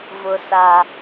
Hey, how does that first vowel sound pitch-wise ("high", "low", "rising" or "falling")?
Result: low